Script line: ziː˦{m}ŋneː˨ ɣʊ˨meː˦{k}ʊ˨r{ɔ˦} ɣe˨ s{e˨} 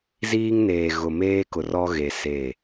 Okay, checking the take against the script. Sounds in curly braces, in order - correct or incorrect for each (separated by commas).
incorrect, correct, correct, incorrect